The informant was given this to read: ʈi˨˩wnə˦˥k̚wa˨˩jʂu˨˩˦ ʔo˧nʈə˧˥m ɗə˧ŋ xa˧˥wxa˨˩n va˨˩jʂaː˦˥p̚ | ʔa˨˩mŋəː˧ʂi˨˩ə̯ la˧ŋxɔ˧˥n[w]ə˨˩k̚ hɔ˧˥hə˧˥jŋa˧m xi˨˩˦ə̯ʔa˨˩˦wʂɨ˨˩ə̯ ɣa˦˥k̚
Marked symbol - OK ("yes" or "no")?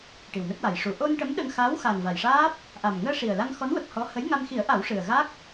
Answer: yes